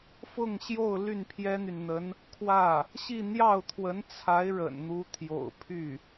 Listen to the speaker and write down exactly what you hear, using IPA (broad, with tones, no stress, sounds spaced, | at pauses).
f ʊ˥˧ ŋ ɕ j o˥˧ ʊ̯ l y˥˩ n pʰ j ɛ˥ n̪ y˨ n n̪ ə˧˥ n | kʰ w ä˥˩ | ɕ i˥˧ n̪ j ɑ˥˩ ʊ̯ t̪ʰ w ə˧˥ n t͡sʰ a˧˥ ɪ̯ ɻ ə̰˨˩ n n̪ u˧˥ t̪ʰ j o̰˨˩ ʊ̯ pʰ y˥˩